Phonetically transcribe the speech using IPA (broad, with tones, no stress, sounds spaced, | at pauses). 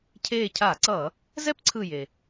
cʰ eː˧˩ cʰ aː˧˩˧ ǀ ʌː˧˩˧ | z ɛ˥ p ǀʰ ɯ˧˩ j e˩